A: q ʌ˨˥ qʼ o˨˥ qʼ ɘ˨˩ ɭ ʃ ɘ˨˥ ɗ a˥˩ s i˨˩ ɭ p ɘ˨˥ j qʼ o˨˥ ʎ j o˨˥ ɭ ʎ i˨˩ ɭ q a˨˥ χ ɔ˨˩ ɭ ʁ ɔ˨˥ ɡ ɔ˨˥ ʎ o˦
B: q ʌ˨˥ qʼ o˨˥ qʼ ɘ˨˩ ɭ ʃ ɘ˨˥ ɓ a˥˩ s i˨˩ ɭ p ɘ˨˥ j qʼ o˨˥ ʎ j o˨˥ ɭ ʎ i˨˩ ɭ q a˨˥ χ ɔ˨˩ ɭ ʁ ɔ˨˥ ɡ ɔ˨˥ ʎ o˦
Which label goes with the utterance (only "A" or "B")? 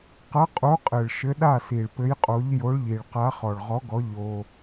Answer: A